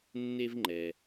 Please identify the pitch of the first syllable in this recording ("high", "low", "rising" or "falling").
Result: high